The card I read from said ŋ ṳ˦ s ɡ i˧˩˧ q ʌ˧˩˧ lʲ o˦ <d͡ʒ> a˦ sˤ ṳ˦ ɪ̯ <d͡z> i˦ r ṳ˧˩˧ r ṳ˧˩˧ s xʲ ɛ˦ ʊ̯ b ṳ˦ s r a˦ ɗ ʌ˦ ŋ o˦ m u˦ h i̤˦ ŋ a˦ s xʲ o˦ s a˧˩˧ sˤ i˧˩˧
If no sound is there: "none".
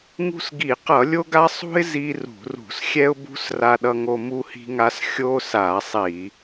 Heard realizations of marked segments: ɡ, z

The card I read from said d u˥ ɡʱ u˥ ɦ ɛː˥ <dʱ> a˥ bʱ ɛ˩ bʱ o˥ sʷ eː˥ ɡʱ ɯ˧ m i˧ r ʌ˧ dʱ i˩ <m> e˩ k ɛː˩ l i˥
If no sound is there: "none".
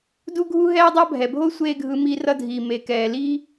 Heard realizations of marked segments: dˤ, m

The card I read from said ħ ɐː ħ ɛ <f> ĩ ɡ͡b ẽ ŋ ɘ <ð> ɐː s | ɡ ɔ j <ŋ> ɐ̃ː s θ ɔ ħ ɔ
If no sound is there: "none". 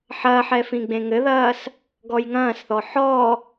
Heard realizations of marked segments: f, ð, ŋ

